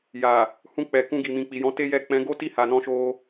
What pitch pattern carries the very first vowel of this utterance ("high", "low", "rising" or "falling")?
low